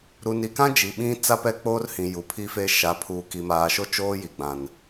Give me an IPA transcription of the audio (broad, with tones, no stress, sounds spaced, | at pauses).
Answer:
ɾ u˨ n i˨ k ã˦ d͡ʒ i˨ ɓ ĩ˦ t͡s a˦ p ɛ˦˨ k͡p oː˦ r h ĩ˨ j u˨ pʰ i˦ f e˦ ʃ a˨˦ pʰ uː˨ k i˨ m aː˨ ʃ o˦ t͡ʃ oː˦ j i˨ ɡ͡b ã˨ n